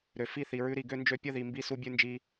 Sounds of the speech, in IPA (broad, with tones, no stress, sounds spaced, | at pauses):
ɾ ø˨ f i˦˨ θ i˨ ɹ ʉ˧ ɾ i˨ ɡ ø˦ n d͡ʒ ø˦ pʲ ə˦˨ ð i˨ m b i˦ s u˦ bʲ ʉ˦ n d͡ʒ i˦